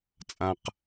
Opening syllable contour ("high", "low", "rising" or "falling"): low